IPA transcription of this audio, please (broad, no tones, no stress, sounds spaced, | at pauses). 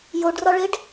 j o ɖ r ɒ ɭ e ɖ